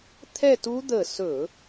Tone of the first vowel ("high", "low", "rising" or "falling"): falling